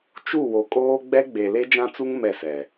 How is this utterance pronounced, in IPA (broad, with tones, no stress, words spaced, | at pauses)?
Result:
t͡ʃu˦˨wo˨kʼoː˦ ɡ͡bɛ˦ɡ͡be˨ le˦d͡ʒã˦t͡su˦ŋ mɛ˦˨sɛ˨